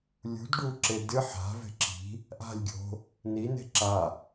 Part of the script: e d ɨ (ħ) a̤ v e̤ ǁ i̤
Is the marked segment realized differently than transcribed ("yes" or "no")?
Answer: no